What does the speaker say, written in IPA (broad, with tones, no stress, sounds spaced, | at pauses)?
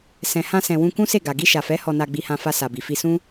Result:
s ɛ̃˨ h ã˧ s ɛ̃˨ w ũ˧ k ũ˦ s e˦˨ ɡ a˨ ɡ i˧ ʃ a˨ f ɛ˨˦ h ɔ˧ n a˧ ɡ͡b i˧ h ã˧ f a˧ s a˨ b i˨ f i˧ s ũ˦